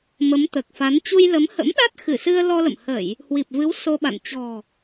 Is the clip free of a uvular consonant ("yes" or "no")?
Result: yes